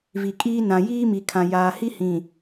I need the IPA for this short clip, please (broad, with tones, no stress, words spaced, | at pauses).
vi˨kʼiː˦ nã˨jiː˦mi˨kʰã˨ jaː˨hi˦hĩ˨